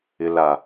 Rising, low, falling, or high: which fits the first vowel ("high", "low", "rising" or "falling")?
low